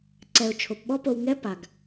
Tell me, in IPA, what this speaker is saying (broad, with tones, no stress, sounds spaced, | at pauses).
ǀ ɛ˩ ʊ̯ t͡ʃʰ o˩ p ɓ ɔ˥ p o˧ w ŋ ɛ˥ p a˩ ɡ